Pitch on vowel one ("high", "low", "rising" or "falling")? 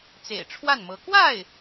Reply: low